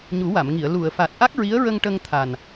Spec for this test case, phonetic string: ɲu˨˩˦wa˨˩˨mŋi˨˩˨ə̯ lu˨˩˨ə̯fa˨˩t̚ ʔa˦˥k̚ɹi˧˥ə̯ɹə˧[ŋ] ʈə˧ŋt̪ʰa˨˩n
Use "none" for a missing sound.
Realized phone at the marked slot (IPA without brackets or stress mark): ŋ